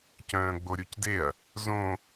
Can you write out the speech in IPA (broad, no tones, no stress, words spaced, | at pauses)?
cœ̃ːɡ͡boɾʲucdeɐ̯ | zõ